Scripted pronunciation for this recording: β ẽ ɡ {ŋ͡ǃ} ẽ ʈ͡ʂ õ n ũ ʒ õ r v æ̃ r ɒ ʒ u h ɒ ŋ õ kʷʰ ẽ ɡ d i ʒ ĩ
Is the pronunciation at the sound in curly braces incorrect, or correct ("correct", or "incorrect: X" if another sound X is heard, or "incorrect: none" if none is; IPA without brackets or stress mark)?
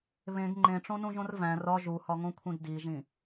correct